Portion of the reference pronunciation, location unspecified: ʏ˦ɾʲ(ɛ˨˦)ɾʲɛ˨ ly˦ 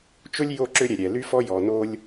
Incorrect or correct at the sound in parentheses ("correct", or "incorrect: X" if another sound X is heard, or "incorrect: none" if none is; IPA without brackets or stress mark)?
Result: incorrect: ɛ˨